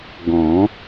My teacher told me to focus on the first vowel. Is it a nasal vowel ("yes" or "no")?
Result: yes